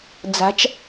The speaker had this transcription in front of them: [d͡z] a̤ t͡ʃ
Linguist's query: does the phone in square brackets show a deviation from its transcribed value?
no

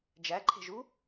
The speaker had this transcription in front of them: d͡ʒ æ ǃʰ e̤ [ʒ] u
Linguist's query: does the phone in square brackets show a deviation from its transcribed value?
no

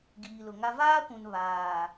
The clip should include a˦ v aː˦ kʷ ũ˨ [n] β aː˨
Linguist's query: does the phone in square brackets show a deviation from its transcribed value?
no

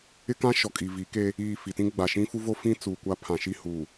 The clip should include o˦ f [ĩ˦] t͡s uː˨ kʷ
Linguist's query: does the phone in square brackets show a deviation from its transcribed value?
no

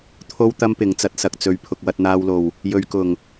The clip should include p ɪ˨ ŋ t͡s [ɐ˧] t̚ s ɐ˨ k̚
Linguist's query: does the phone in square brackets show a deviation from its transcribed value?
no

